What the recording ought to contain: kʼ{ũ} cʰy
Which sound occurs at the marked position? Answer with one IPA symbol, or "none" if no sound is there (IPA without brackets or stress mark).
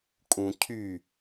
ũ